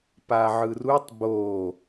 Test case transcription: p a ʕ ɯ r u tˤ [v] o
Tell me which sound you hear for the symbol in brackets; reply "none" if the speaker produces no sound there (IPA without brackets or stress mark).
b